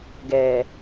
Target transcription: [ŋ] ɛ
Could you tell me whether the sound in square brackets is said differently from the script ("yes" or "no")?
yes